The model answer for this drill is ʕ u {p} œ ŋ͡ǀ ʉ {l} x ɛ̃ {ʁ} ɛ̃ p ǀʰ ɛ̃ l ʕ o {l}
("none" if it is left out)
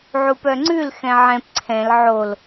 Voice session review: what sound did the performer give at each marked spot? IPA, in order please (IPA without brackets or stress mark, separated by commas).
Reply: p, l, ʕ, l